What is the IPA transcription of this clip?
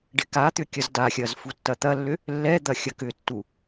ɖ ɪ k a t̪ ʏ kʲ ɐ z d a xʲ ɐː z f u tː ɐ t̪ ɐ lː ʏ | lː ɛ d̪ ɐ xʲ ɐ k ʏ tː u

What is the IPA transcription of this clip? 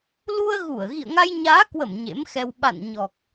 l u˧ ə̯ ɣ u˧˩ ə̯ ɣ ḭ˧˨ ə̯ ŋ a˧ j ɲ aː˨˦ k w ə˧˩ m ɲ ḛ˧˥ m x ɛ˧ w ɓ a̰˧˨ n ɲ ɔ˨˩ k̚

